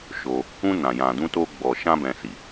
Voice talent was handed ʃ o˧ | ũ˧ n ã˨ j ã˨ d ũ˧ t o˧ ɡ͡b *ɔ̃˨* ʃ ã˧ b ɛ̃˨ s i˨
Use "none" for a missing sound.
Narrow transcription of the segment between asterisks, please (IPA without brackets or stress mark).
ɔ˨